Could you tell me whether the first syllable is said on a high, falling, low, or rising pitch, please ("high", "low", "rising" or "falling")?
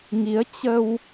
rising